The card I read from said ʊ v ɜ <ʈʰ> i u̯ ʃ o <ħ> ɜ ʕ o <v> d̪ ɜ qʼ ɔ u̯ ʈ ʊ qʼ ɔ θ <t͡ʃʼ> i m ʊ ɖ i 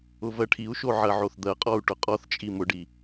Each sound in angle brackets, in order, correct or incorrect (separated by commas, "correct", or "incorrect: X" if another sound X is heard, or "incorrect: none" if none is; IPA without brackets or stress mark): correct, incorrect: ʕ, incorrect: θ, correct